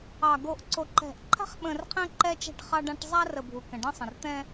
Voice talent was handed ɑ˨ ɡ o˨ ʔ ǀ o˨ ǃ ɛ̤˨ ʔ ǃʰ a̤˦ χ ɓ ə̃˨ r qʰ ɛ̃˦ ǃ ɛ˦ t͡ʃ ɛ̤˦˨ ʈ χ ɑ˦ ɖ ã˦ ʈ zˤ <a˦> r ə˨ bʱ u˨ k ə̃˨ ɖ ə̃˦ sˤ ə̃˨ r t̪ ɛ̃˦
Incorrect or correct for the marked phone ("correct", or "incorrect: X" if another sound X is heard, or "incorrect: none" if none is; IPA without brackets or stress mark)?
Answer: correct